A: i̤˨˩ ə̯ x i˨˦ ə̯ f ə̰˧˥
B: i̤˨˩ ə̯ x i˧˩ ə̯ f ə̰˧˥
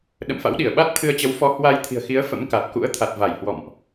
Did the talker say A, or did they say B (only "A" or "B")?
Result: A